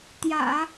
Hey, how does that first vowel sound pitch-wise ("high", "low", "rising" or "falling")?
low